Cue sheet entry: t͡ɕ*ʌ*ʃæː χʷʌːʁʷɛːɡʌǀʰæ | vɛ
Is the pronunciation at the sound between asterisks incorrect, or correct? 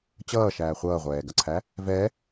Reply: incorrect